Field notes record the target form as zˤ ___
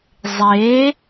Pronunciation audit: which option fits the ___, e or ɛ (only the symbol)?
e